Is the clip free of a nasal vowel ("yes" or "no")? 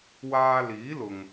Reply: yes